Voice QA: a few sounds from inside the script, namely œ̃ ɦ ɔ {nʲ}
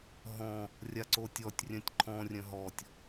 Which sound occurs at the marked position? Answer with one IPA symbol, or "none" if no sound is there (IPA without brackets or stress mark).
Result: tʲ